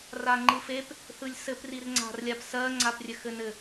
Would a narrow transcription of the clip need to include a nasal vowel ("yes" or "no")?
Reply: no